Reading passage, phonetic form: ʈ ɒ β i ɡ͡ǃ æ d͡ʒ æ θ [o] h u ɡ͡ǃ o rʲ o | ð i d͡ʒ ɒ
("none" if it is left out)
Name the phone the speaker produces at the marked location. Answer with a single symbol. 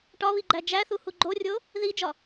u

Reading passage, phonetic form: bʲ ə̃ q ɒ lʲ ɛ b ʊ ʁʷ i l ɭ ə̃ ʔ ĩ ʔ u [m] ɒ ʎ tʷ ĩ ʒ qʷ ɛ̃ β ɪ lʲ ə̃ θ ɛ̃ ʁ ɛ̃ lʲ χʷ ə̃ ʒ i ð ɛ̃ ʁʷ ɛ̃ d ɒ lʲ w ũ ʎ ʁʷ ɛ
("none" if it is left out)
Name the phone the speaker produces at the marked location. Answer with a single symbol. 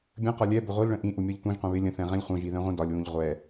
mʲ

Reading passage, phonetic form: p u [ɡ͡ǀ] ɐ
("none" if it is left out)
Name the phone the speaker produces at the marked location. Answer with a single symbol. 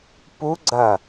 ɡ͡ǀ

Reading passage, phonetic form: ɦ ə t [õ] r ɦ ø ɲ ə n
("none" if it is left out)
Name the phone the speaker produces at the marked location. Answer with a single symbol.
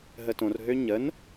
õ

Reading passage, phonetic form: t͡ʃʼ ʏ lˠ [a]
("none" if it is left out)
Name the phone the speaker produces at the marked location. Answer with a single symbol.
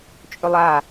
a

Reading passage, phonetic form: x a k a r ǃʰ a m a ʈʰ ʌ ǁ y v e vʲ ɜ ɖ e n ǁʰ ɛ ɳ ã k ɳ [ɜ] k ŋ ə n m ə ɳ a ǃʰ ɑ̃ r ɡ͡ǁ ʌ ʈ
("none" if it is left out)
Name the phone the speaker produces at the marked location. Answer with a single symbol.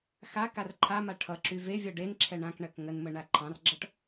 ɜ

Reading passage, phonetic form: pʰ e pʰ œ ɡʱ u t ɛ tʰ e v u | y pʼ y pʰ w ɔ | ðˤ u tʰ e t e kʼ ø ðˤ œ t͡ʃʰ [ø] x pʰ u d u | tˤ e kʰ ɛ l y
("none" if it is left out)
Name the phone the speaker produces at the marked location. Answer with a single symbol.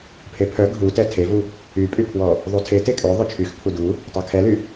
y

